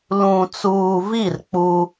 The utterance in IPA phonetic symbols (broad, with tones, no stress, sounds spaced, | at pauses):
l ũ˨ t͡s uː˨ v i˦˨ r k͡p u˦